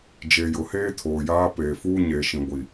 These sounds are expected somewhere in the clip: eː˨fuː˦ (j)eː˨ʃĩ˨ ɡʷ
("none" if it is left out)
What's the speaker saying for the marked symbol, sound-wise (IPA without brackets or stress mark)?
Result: ɲ